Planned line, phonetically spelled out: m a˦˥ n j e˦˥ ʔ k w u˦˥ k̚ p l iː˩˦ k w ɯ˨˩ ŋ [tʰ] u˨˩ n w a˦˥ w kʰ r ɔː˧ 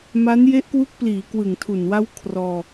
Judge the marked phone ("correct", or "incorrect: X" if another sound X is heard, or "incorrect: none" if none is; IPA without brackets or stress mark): correct